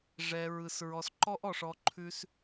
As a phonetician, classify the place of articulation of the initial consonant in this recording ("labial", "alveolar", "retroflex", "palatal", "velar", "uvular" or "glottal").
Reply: retroflex